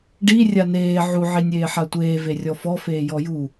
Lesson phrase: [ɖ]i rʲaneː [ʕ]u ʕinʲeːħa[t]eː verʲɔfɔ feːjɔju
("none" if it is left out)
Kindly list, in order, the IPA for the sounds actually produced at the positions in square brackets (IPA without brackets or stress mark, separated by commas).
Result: ɖ, ʕ, tʷ